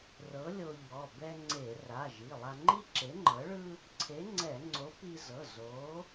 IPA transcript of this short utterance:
r ɤ˨˥ lʲ o˧ ʎ ɔ˩˧˩ b ɛ˧ ŋ͡ǀ e˧˩˧ r a˩˧˩ ʒ i˩˧˩ lˠ a˧ ŋ͡ǃ i˥ ǁ e˨˥ ŋ͡ǃ ɤ˨˥ ɭ ɯ˥ | ǀʰ e˨˥ ŋ͡ǀ ɛ˧˩˧ ŋ͡ǀ o˨˥ p i˧ z ɤ˩˧˩ z o˨˥

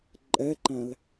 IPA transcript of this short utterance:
ǃʼ ɛ ǃ æ̃ l

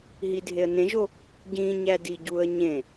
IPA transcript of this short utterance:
ɦ i dʱ e ə̯ n ẽ ʒ o | ɟ ĩ ɲ æ d i ɟ u ə̯ ɲ ẽ

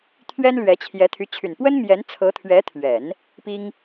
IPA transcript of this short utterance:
t̪ʰ ɥ ɛ˥ n l ɥ ɛ˧˥ t͡ɕʰ j ɛ˧˥ t̪ʰ y˧˥ t͡ɕʰ y˨˩ n p w ə˥ n m j ɛ˧˥ n t͡sʰ ɤ˧˥ t̪ʰ ɥ ɛ˧˥ t̪ʰ ɥ ɛ˨˩˦ n | p i˥ ŋ

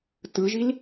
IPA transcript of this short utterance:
t ɯ ʒ i l

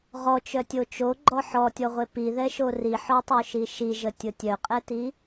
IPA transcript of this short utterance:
ʁ ɔ t͡ʃ œ tʲ o t͡ʃ o ɡ͡ǃ ɔ ħ ɔ tʲ ɔ ʁʷ e p i ð ɛ ʃ o r i ħ ɔ tˤ o ʃ i ʃ i ʒ ə tʲ ʊ tʲ œ qʼ ɛ t i

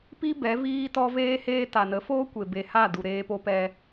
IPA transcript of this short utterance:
p i˧ b ɛ˨˦ v iː˦ t ɔ˦ v eː˦ h eː˦ t a˨ n ə˨˦ f oː˦ kʷ e˨ b e˨ h a˦˨ d u˨ ɾ eː˦ p o˦ p ɛ˦

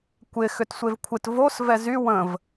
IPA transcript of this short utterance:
kʷ ɪ x ʏ t sʷ e v kʷʰ ɪ t v o s v ɛ z y w ə̃ v

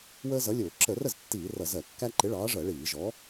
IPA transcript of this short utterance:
w əː˦ z ʌ˨˥ lʲ ʊː˧˩˧ ǁ ə˧˩˧ r ə˥˩ z tː iː˧˩˧ r ʌ˧˩˧ z ɜ˧˩˧ kː æ˦ ǃ ɪ˨˥ ɭ ɑː˨˥ ʐ ɜ˧˩˧ ɭ iː˧˩˧ ʒ ɔ˨˥

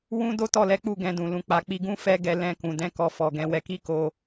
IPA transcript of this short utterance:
w ũ˦ d o˦ t ɔ˦˨ l ɛ˨˦ k͡p u˦˨ ɡ ɛ̃˧ d ũ˨ l ũ˨ k͡p a˨ k͡p i˧ ɡ ũ˦ f ɛ˦ ɡ ɛ˧ l ɛ̃˧ k ũ˨ d ɛ̃˨˦ k ɔ˧ f ɔ˨ ɡ ɛ̃˨˦ w ɛ˧ k i˦ k o˧

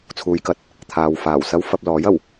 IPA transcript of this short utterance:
t͡sʰ uː˨˧ j k ɐ˨˥ t̚ | t̪ʰ aː˨ w f aː˨˩ w s ɐ˥ w f ɐ˧ p̚ l ɔː˨˥ j ɐ˨˩ w

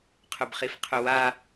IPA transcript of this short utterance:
qʰ ʊ b χ i f qʰ ʊ w a

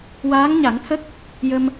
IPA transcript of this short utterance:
w aː˧˥ ŋ ɲ a˨˩˦ ŋ t̪ʰ ə˦˥ k̚ | j ə˧ m

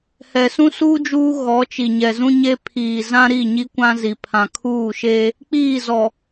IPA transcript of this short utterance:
h ɛ˨ s ũ˦ s uː˦ d͡ʒ uː˦ ɣ ɔ˨˦ t͡ʃ i˨ ɲ ɛ˨ z ũ˦ ɲ e˦ pʰ iː˨ z ã˦ ɾ i˦˨ ɲ i˦ kʷ ã˦ z i˨ pʰ ã˨ kʰ uː˦˨ ʃ eː˦ | k͡p iː˦˨ z ɔ˨

